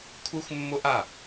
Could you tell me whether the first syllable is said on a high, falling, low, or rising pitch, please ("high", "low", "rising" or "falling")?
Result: high